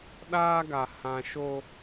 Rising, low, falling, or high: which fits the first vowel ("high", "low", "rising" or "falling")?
high